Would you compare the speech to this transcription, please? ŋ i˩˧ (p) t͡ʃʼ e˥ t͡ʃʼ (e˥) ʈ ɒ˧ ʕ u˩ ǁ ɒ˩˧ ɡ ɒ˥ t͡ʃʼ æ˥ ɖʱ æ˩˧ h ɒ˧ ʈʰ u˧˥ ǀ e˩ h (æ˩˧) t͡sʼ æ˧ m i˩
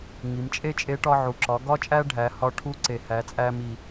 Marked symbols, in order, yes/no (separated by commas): no, no, yes